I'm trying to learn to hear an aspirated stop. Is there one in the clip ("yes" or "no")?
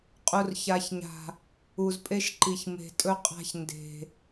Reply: no